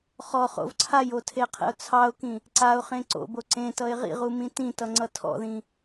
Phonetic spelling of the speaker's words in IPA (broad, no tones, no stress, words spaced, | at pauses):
χɔ χo̰vǀʰajo tʰeqʰḛʊ̯t͡sʰɑʊ̯kĩ | ǀaʊ̯χẽ ǀo̰bo ǀẽ tʌɪ̯ʁḭʁu mĩtĩtʌ ŋ͡ǀʌtʰɔ̰ðĩ